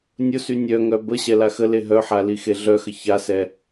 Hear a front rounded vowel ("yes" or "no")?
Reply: yes